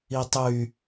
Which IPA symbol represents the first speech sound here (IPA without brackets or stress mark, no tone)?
i